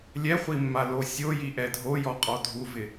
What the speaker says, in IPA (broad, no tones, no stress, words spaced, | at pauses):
lʲɛχʷimːalo sʲojiʔɛ dʱojɔqʼɔ dʱuvɪ